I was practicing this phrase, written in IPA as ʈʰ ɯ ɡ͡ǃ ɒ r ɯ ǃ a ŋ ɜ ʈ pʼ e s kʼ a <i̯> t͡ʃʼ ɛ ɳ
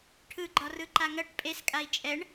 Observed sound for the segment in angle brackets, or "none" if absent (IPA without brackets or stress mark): i̯